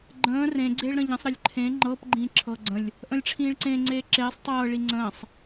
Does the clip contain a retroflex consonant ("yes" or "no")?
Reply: yes